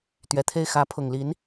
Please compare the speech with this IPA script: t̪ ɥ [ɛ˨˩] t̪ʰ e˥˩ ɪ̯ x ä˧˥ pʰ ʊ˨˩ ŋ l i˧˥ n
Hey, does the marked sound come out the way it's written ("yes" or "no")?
yes